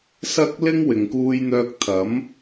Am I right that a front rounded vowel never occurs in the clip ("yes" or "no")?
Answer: no